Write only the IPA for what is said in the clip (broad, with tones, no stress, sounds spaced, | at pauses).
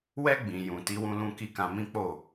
w ɛ˦ ɡ͡b ĩ˧ j ũ˨ t i˧ w ũ˧ l ũ˧ k i˦ k ã˧ m ĩ˦ k͡p o˦˨